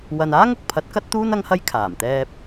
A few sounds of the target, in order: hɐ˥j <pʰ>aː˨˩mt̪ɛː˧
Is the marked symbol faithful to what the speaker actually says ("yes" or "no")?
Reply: no